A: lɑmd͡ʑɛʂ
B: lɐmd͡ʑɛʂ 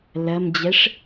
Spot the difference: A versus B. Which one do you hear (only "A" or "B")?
B